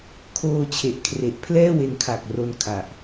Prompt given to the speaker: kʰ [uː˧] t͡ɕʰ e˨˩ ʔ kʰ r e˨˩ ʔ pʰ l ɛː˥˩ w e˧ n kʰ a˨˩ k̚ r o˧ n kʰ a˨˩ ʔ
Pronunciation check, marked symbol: incorrect: oː˧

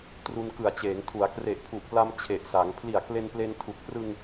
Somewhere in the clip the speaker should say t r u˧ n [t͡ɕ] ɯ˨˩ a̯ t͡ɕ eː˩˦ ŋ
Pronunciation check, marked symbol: incorrect: k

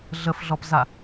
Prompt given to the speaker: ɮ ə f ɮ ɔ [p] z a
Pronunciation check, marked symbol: correct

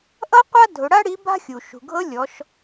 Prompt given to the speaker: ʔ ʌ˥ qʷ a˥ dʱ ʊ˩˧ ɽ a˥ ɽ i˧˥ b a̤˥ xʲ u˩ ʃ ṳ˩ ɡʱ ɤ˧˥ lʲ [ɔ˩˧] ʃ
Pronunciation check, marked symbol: correct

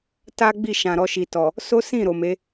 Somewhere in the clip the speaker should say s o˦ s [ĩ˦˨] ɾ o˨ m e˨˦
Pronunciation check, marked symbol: correct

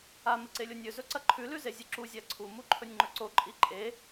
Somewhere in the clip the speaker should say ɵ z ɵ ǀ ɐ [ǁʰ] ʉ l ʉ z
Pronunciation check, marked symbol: incorrect: ǃʰ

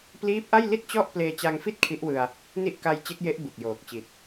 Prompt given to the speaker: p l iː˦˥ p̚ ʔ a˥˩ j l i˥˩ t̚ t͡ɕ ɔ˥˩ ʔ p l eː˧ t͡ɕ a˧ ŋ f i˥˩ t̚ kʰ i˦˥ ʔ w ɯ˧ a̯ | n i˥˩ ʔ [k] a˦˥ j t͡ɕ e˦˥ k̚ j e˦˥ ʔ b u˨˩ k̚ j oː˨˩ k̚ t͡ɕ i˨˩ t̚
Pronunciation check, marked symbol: correct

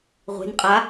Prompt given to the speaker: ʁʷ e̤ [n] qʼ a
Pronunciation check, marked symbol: correct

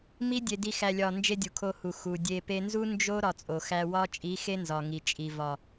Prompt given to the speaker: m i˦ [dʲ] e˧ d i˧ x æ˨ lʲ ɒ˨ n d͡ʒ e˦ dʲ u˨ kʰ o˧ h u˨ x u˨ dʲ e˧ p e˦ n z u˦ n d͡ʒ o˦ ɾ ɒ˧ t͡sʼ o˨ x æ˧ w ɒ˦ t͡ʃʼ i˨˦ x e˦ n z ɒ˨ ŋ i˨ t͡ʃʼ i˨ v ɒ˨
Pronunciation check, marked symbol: correct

